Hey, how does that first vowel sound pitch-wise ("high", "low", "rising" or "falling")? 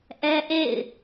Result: high